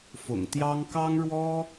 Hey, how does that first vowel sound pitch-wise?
low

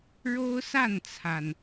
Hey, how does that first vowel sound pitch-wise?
high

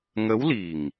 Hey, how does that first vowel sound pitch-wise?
rising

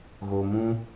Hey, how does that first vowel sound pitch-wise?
low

